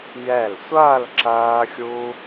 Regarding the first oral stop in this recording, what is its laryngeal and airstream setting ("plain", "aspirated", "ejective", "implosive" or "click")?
click